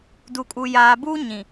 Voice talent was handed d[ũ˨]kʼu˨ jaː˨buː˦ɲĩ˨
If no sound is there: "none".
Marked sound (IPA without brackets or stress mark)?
u˨